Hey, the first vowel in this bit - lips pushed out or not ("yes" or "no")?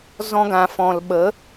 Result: yes